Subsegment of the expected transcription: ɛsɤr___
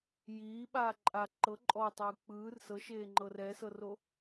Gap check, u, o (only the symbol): o